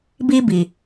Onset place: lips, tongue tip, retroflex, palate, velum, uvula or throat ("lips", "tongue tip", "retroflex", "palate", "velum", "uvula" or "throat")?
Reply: lips